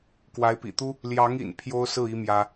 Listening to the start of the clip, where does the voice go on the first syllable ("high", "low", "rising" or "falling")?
rising